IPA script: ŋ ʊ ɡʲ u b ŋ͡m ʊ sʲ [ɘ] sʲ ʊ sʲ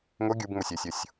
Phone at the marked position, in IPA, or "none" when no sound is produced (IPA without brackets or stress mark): e